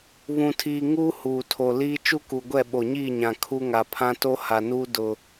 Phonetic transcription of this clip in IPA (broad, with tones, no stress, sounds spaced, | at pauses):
β ũ˨ tʰ iː˨ ŋ uː˦ h uː˨ tʰ o˨ l iː˦ t͡ʃ u˦ k u˨ ɡʷ ɛ˦˨ ɓ o˨ ɲ iː˦˨ ɲ ã˨ kʰ u˦ ŋ a˨ pʰ ã˦ t o˦ h a˨ n uː˦ d ʊ˦